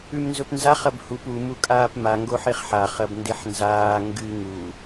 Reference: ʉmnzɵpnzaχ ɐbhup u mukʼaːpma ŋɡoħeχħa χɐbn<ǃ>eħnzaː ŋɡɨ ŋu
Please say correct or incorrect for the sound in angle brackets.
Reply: incorrect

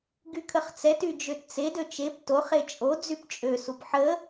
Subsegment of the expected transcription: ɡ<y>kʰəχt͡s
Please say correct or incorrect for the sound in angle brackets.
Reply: correct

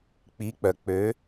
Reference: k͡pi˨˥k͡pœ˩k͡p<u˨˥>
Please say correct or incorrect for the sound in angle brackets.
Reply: incorrect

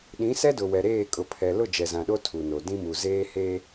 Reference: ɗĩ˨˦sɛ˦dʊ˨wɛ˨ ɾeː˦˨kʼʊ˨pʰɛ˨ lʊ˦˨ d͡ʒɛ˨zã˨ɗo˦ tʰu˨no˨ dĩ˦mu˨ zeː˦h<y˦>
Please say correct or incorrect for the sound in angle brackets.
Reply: incorrect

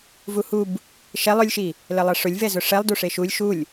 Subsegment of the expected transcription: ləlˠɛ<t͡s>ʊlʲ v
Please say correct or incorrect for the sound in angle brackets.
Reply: incorrect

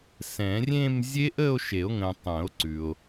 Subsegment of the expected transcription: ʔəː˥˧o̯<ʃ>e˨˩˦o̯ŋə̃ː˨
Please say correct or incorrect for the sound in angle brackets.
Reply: correct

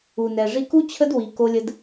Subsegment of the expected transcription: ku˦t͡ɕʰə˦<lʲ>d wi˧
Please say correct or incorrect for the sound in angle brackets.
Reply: incorrect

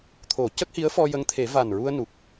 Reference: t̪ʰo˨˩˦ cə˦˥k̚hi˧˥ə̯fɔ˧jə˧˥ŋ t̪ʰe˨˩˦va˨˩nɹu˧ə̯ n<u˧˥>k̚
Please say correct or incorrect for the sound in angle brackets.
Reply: incorrect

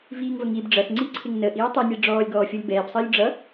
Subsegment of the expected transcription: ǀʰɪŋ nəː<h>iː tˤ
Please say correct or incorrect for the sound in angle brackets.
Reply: incorrect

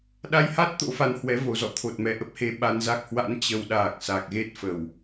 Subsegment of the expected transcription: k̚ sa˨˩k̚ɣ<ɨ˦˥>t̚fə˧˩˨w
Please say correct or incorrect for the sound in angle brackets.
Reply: incorrect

